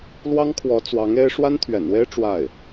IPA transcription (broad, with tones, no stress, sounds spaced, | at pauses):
l w ɑ˥ ŋ kʰ w ɔ˧˥ t͡s w ɑ˧˥ ŋ e˥ ɪ̯ ʂ w a˥ n t̪ʰ ɥ ɛ̰˨˩ n w e˥ ɪ̯ ʈ͡ʂ w a˥˩ ɪ̯